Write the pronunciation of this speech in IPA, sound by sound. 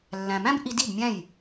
lː æ̃˨ m æ̃˦ b ʔ i˧ d i˦˨ b mʲ æ̃˦˨ j

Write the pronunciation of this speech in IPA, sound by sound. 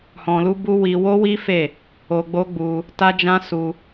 h ɔ̃˧ l u˦ b u˦ w i˧ w o˦ w i˦ f e˦˨ | o˧ ɡ͡b o˦ ɡ͡b u˧ | t a˦ d͡ʒ ã˦ s u˧

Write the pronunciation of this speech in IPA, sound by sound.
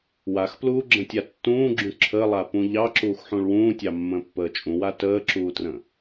w a x p l uː ɡ͡ǁ ə̃ tʲ a tː ũː ɡ͡ǁ ũ ǁʰ ə lˠ a p ũ ʎ ɑ ǁ uː x ħ ũ ɭ w ũː tʲ ɑ mː ə̃ː pː əː t͡ʃʼ ũ w a t əː ǁ uː t r ə̃

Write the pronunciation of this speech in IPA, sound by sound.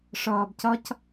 ʂ ɔː b c ɔ c

